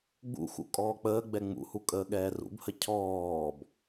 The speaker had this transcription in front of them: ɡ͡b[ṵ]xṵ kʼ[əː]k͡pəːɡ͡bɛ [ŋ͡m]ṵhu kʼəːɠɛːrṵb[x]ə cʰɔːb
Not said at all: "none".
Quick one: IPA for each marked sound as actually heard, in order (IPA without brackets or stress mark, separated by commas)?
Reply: ṵ, ɔː, ŋ͡m, h